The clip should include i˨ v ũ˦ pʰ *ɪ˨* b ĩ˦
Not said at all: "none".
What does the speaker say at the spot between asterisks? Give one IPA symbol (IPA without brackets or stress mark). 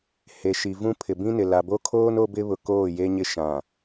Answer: ɪ˨